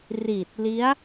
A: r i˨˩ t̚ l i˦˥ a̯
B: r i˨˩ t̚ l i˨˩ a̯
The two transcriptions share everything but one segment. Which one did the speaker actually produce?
A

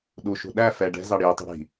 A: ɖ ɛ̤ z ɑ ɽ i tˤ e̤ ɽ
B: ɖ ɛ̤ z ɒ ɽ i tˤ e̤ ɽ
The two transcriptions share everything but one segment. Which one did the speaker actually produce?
A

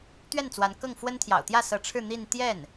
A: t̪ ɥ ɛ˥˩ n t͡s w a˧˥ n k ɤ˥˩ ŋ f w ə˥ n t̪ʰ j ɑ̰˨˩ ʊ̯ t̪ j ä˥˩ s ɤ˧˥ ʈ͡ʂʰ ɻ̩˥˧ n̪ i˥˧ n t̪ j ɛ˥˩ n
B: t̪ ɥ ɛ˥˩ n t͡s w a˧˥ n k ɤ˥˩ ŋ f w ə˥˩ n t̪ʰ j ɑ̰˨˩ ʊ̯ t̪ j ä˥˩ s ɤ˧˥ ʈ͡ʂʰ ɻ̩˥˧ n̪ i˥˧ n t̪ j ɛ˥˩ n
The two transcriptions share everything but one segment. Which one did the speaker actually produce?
A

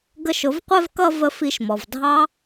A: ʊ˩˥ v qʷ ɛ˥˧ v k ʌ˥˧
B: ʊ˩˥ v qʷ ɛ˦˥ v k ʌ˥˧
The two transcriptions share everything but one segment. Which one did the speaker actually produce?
A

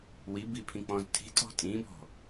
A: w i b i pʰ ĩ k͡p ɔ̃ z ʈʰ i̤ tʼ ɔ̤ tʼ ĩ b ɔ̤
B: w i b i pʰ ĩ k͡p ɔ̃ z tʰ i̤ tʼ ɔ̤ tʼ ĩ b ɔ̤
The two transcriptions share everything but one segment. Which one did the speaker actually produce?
B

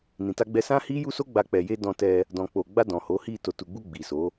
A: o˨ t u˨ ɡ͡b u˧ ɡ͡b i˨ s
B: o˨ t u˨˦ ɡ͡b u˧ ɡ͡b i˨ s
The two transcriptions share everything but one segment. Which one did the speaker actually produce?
A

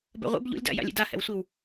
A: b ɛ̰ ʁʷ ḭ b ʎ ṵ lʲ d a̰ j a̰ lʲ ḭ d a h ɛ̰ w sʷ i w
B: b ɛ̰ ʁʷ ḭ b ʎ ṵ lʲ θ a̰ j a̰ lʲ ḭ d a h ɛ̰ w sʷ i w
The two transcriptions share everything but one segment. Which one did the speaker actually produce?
A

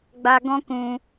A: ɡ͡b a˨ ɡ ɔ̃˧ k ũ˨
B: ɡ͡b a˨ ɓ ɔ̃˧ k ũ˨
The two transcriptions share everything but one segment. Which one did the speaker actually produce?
A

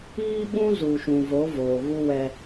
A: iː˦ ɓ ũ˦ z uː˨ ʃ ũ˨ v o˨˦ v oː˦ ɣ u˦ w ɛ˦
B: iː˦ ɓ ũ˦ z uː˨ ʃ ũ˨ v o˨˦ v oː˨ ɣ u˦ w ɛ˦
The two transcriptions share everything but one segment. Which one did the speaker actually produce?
B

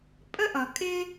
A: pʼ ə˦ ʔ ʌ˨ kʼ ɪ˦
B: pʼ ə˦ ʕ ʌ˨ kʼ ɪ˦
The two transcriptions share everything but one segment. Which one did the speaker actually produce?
A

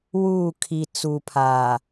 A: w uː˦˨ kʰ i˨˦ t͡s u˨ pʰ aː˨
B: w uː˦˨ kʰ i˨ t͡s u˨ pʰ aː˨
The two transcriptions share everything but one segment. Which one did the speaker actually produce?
B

